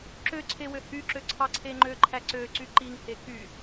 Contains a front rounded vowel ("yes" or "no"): yes